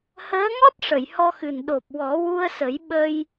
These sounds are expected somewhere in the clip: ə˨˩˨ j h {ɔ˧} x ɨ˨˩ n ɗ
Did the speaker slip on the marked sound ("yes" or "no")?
no